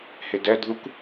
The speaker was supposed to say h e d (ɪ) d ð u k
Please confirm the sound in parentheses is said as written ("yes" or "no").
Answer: no